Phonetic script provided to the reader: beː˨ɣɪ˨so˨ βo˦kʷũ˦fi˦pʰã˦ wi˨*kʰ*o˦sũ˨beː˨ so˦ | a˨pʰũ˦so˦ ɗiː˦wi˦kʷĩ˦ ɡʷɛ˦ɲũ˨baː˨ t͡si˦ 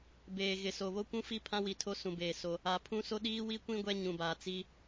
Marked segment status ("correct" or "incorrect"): incorrect